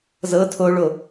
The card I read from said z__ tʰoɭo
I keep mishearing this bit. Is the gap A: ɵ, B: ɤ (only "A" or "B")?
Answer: B